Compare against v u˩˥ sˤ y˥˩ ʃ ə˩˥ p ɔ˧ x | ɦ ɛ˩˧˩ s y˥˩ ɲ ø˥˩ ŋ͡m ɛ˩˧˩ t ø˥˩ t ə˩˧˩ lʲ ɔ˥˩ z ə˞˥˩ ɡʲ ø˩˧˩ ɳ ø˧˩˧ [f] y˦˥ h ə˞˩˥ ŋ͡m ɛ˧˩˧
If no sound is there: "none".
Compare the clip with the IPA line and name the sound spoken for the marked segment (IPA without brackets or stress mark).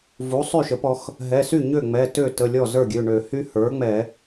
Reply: h